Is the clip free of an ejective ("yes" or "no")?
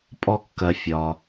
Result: no